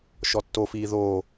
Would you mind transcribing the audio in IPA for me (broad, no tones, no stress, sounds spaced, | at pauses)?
ʃ ɔ tː o f iː ð oː